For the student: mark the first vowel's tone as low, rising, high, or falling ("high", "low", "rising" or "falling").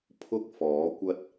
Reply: high